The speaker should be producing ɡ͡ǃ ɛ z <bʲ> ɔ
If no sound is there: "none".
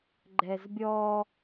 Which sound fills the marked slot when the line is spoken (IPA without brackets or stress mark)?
bʲ